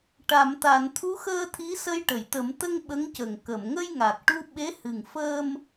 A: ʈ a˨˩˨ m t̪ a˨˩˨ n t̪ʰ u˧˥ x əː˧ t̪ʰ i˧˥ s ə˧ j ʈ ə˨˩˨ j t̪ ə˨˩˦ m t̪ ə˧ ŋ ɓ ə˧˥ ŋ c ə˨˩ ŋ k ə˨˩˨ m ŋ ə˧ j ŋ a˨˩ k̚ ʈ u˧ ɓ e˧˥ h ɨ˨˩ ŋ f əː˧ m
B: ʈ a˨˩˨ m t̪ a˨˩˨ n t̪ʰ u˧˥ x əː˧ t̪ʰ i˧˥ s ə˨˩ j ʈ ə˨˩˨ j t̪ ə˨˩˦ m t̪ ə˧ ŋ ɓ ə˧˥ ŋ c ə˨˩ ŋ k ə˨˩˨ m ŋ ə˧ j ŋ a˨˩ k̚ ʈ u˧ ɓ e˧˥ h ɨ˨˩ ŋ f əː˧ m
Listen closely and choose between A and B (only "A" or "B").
A